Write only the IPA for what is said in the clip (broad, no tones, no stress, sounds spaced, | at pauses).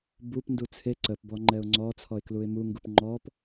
b u p n d u t͡sʰ e ǀ ə p b ɔ ŋ͡ǃ ɛ ʊ̯ ŋ͡ǀ ɔ t͡sʰ ɔ ɪ̯ k l u ɪ̯ m u ŋ ɡ u p ŋ͡ǃ ɔ p